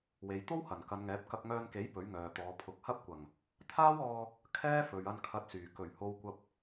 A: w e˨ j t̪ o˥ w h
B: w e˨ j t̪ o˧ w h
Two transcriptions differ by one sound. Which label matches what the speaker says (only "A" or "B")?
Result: A